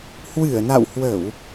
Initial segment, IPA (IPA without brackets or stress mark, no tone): h